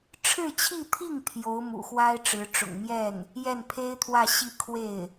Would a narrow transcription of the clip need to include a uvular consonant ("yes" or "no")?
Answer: no